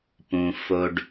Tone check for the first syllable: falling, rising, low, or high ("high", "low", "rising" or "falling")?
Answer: low